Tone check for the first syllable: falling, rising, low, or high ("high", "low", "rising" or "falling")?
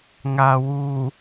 low